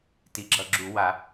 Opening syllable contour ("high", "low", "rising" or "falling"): rising